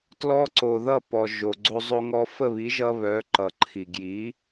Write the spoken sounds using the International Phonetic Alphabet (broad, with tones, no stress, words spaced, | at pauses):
tlɔ˧ǀo˩ ðʌ˥˩pɔ˩ ʒo˩ɡ͡ǀo˧ zˤo˧ŋɔ˧ fə˥˩βi˩˥ʒʌ˧ βœ˩˥ ǃʌ˩ǃʰi˩ ɡji˩˥